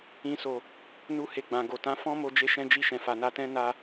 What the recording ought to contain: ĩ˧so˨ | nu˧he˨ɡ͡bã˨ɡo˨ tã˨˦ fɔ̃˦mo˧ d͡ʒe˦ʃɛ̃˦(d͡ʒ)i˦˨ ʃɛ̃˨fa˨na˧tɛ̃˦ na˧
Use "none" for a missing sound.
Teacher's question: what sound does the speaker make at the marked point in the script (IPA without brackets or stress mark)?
d͡ʒ